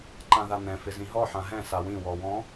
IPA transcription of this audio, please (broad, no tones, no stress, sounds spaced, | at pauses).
ǃ ã ð a n̪ ɛ̃ f ɪ z ĩ ɦ ɔ ħ ã ɦ ɛ̃ s a w ĩ w ɔ w ɔ̃